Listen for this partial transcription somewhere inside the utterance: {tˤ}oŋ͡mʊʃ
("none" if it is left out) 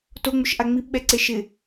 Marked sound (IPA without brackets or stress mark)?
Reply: t